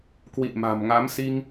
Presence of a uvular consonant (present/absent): absent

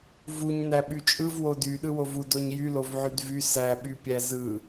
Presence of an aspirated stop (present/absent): absent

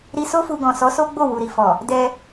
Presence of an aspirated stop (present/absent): absent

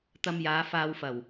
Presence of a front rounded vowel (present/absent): absent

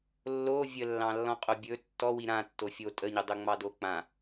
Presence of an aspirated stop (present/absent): absent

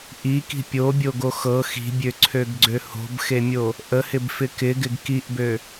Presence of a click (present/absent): present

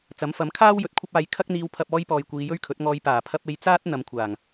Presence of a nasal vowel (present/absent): absent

